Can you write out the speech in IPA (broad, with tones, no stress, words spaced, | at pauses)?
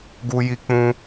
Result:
ɡu˧ji˧k͡pũ˧